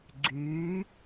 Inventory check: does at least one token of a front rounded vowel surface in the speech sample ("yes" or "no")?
yes